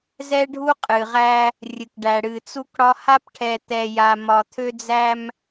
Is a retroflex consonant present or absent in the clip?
present